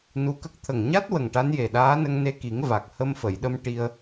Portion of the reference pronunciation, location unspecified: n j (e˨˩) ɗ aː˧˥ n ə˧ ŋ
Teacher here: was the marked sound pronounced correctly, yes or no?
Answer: yes